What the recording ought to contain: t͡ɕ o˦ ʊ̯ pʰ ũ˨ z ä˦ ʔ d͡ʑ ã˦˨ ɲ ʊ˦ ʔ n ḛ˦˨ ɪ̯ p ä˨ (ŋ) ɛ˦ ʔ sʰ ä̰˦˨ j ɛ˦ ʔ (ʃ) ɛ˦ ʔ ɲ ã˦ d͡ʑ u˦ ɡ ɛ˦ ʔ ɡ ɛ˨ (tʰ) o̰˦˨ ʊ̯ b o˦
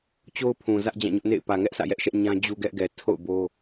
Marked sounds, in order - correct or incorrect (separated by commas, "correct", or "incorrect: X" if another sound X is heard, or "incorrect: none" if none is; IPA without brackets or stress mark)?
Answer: correct, correct, correct